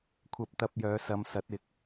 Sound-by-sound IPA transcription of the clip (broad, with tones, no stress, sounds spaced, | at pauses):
kʷʰ ɐ˧ p̚ t̪ ɐ˧ p̚ j œː˨˧ s ɐ˨˧ m s ɐ˨˥ t̚ ɪ˨˥ k̚